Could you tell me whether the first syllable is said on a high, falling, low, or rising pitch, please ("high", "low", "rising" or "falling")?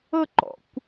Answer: falling